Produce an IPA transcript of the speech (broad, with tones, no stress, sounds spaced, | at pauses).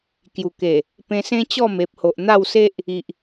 k j u˨˩ k e˨˩ | p ẽ˧ s ẽ˦ t͡ɕ ɔ˥˧ m e˨ p̚ h o˨ ʔ n̪ a˥˧ w s e˦ ʔ | i˨ ʔ